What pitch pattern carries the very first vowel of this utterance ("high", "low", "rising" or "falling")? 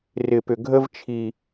low